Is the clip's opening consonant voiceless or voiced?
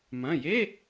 voiced